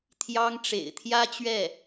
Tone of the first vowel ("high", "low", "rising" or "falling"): high